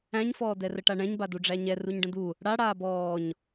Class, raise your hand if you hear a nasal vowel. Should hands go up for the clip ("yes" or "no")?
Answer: yes